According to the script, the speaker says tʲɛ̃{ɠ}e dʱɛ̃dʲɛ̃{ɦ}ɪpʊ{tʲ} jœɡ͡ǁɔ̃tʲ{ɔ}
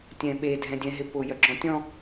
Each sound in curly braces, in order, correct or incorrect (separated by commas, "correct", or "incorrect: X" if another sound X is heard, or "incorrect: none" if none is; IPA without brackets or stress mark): incorrect: ɓ, correct, incorrect: none, incorrect: ɔ̃